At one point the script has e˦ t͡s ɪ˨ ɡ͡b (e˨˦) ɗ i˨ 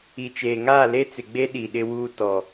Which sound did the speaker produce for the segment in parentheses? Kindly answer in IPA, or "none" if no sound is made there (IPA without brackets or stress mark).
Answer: e˦